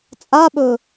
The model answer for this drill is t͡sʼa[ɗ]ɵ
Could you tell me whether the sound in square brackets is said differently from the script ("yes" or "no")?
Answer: yes